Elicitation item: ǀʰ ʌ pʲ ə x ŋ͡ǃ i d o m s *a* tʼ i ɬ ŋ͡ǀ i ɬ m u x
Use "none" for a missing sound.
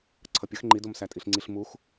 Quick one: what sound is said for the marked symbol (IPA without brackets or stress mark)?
æ